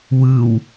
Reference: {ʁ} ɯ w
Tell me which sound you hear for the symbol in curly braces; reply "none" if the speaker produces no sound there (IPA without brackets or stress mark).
w